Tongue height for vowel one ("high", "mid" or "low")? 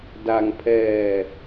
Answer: low